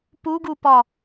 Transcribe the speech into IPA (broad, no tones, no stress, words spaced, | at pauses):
puɡupɒ